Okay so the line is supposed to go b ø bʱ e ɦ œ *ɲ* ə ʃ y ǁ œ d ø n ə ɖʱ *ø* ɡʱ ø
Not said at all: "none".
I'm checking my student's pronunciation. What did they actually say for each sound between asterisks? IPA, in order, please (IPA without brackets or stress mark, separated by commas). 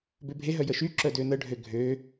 j, ø